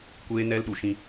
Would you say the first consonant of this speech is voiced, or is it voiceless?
voiceless